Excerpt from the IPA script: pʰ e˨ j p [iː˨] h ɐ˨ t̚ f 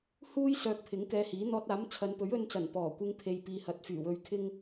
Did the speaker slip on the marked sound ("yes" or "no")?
no